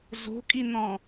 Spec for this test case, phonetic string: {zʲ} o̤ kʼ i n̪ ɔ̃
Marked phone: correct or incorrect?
incorrect